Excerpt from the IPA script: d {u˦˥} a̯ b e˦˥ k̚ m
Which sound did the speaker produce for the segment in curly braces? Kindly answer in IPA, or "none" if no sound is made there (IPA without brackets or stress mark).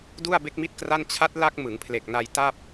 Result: u˥˩